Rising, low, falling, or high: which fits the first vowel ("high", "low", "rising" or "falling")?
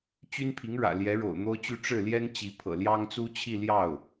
high